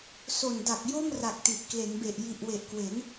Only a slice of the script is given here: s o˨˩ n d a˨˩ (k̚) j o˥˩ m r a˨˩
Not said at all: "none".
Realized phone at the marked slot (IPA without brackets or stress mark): k̚